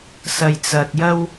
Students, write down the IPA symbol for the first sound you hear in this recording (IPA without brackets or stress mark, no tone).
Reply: s